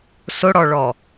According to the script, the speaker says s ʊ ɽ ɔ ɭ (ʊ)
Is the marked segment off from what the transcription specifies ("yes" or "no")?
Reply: yes